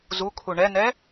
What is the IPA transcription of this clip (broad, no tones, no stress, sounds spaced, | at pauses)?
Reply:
z u kʰ u ɳ ɛ n ɛ